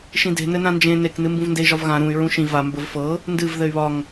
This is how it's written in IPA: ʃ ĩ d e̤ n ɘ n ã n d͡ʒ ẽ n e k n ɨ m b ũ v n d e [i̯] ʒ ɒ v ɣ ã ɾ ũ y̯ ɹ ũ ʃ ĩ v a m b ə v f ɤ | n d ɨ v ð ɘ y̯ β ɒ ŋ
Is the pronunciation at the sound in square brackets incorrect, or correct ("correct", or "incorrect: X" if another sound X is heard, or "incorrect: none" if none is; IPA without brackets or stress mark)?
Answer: correct